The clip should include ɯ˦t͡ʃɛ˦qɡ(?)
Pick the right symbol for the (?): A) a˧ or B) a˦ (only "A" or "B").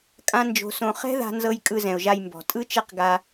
A